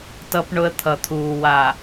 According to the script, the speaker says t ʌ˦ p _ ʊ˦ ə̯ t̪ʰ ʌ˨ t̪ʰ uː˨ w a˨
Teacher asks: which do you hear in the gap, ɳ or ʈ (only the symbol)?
ɳ